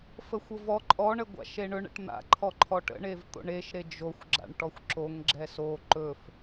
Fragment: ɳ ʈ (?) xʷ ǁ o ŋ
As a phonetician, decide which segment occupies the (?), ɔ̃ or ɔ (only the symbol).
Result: ɔ